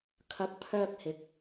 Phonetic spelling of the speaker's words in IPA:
kʰ ɐ˨˥ k̚ pʰ œː˧ k̚ h ɪ˨˥ k̚

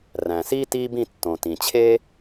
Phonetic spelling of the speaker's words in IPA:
r æ̃˩ s iː˥ t iː˥ b ĩ˦ tː õ˨ t ĩ˩ t͡ɕʰ e˥

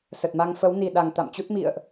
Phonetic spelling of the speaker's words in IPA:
s ə˨˩ t̚ m a˧ ŋ f ə˨˦ w n i˨˩ ɗ a˨˩ ŋ t̪ a̰˧˨ m t͡ɕ u˦˥ t̚ m ḭ˧˨ ə̯ ʔ

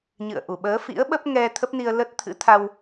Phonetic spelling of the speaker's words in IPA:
ɲ ɨ̰˧˨ ə̯ ʔ u˧˩ ɓ əː˨˦ f ḭ˧˥ ə̯ ɓ ə˦˥ p̚ ŋ ɛ˧ t̪ʰ ə˦˥ p̚ n i˧ ə̯ l ə˦˥ t̚ t̪ʰ ɨ̰˧˥ t̪ʰ a˧ w

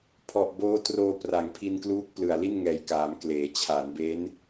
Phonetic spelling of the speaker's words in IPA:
pʰ ɔ˨˩ ʔ b oː˦˥ t r oː˧ p r a˩˦ ŋ pʰ i˧ n k l uː˦˥ k̚ p l ɯ˨˩ a̯ l i˥˩ n ŋ ɛː˨˩ j k aː˩˦ m k l eː˩˦ t͡ɕʰ a˩˦ n b e˦˥ n

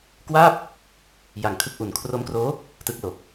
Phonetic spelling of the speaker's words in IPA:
k w aː˥˩ p̚ | j a˨˩ ŋ kʰ ɯ˥˩ k̚ ʔ u˨˩ n kʰ r o˦˥ m k r oː˦˥ | t ɯ˦˥ k̚ l o˨˩ k̚

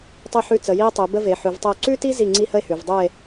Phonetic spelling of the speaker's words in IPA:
tˤ ʉ˥˧ ħ ʉ˥˧ t͡s ə˨˦ j i˥ e̯ tˤ ʉ˨˦ b ə˥ v e˨˦ ħ ʉ˨˦ v tˤ ə˥˧ o̯ ǀ ʉ˥ t i˥ z i˥˧ ŋ͡ǀ i˥ h ə˥ e̯ h ʉ˨˦ v dˤ ʉ˥˧ e̯

